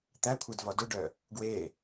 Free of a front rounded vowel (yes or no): no